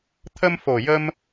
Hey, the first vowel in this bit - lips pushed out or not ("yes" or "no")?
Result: no